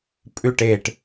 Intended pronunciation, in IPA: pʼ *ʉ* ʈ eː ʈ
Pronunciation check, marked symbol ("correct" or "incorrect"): correct